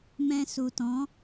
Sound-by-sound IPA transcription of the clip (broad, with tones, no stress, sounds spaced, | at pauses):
m ɛ̃˧ s u˨ t ɔ̃˨˦